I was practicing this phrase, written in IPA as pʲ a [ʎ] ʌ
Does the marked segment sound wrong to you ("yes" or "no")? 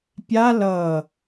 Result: yes